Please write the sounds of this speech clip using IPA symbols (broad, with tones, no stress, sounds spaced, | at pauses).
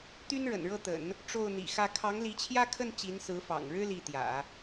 t̪ y˥ n ɻ ə̰˨˩ n ɻ ɤ˥˩ t̪ ə̰˨˩˦ n | ʈ͡ʂ o˥˩ ʊ̯ n̪ ḭ˨˩ x ä˥˩ kʰ ɑ˧˥ ŋ l i˧˥ t͡ɕʰ j ä˥˧ kʰ ə˥˩ n t͡ɕ i˧˥ n s ɹ̩˧˥ f ɑ̰˨˩ ŋ ɻ ɻ̩˥ l i˥˩ t̪ j ä̰˨˩˦